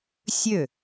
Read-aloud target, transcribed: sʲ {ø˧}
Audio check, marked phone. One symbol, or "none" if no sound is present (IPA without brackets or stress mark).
ø˥˩